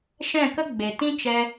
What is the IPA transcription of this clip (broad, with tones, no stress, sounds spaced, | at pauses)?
ʃ ɛ̃˦˨ k ə˦ ɡ͡b e˨ t ĩ˦ t͡ʃ ɛ˧